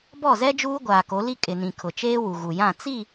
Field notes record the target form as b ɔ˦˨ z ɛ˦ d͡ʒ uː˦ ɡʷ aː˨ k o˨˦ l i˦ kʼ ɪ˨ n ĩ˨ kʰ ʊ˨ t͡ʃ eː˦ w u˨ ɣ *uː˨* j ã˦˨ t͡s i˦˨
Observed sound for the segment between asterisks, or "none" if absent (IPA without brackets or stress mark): u˨